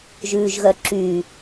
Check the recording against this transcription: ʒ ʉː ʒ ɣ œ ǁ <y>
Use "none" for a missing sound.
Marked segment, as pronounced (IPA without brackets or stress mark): y